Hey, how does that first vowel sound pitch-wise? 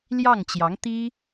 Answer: falling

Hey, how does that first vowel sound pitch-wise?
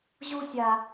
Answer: high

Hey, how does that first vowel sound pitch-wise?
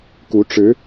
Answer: rising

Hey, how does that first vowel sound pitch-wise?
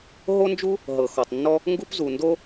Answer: high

